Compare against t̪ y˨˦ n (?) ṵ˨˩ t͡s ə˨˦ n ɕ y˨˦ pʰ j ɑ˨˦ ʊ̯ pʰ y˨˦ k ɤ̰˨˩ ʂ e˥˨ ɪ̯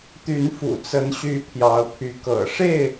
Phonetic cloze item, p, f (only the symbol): f